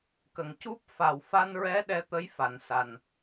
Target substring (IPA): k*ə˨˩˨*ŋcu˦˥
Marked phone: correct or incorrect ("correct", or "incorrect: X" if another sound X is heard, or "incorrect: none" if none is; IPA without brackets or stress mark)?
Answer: correct